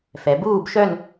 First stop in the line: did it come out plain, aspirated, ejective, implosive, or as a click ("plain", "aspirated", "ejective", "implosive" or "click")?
plain